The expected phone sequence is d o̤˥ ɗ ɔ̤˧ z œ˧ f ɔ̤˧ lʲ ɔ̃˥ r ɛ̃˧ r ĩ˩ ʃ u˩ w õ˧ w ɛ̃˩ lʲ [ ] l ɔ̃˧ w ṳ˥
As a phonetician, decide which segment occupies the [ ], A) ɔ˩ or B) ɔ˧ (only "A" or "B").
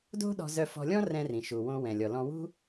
A